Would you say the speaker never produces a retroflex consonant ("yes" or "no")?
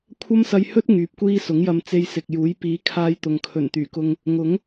yes